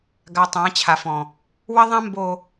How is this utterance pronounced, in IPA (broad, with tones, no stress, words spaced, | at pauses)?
ɡa˨tˤã˨˦t͡ɕʰa˨fɔ̃˨ | wə˦ðˤã˦mbo˨